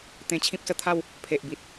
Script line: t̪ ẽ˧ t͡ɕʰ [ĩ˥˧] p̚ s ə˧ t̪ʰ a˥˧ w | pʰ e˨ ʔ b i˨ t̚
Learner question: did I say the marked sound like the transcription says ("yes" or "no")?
no